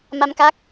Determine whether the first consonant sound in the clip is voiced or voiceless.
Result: voiced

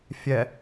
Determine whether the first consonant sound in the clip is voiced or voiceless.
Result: voiceless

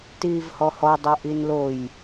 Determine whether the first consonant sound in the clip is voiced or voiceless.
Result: voiceless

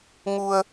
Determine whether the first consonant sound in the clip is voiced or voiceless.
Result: voiced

